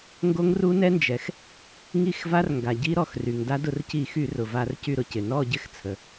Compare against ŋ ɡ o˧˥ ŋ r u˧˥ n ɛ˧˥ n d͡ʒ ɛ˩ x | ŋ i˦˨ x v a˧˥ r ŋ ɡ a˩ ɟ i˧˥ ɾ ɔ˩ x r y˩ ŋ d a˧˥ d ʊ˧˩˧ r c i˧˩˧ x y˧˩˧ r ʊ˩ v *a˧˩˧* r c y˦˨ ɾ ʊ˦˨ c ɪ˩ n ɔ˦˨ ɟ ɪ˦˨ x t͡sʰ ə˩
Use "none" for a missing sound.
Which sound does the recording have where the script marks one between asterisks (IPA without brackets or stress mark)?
a˧˩˧